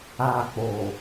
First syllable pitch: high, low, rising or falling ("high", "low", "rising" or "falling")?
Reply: high